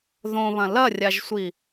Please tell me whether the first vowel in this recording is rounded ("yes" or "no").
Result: yes